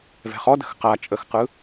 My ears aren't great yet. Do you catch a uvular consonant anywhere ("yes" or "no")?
yes